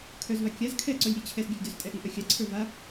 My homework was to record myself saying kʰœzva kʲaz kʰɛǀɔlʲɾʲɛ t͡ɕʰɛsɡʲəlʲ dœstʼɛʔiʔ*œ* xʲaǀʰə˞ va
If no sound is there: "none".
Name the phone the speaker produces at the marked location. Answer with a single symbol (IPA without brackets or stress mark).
œ